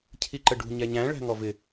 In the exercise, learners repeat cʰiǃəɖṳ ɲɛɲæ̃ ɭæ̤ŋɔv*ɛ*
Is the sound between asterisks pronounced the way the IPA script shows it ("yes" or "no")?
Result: no